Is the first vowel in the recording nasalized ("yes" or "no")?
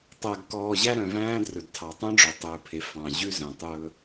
no